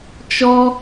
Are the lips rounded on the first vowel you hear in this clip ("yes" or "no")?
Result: yes